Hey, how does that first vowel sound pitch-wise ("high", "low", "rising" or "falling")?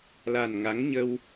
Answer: low